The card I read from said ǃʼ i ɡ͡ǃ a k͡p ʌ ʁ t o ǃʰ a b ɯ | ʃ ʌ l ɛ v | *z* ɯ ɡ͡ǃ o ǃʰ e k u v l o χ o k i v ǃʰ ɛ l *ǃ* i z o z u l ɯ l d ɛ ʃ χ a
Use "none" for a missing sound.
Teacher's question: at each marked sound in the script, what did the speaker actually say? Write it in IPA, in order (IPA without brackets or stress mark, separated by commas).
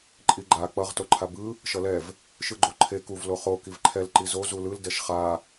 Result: ʃ, ǃ